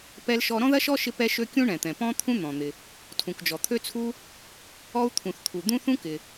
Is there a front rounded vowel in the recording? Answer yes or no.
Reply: yes